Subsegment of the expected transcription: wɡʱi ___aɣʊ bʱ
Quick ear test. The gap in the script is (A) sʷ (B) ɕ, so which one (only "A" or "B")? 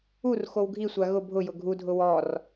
A